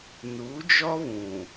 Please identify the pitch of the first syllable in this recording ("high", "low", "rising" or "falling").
rising